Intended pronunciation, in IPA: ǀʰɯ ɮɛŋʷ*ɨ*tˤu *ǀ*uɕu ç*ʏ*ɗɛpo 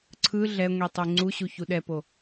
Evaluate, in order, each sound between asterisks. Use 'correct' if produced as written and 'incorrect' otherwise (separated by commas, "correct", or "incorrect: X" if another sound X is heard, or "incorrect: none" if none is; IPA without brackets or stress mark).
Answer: incorrect: i, incorrect: ŋ͡ǀ, incorrect: u